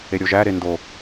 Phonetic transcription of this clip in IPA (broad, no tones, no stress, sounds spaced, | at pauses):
e ɾʲ o ʒ æ ɾ e n d o